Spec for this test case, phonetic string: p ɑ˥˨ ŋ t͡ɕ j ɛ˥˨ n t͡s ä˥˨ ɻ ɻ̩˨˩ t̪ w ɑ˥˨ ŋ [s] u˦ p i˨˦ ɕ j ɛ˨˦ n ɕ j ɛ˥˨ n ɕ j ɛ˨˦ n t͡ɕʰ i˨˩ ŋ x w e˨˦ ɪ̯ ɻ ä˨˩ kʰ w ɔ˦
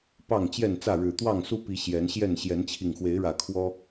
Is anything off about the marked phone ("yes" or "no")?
no